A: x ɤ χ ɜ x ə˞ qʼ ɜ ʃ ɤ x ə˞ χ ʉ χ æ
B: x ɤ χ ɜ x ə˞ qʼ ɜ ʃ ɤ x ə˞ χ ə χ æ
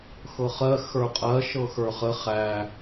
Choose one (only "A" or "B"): B